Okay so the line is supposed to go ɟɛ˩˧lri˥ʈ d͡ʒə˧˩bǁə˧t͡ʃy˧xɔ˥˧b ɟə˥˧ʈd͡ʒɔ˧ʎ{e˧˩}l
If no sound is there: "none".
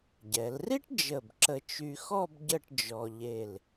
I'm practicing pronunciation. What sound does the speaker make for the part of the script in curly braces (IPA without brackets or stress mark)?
e˧˩